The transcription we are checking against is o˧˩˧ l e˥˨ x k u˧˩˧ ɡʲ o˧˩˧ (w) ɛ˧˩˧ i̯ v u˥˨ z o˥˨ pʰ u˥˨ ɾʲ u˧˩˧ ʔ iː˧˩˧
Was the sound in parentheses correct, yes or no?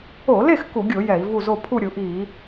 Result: no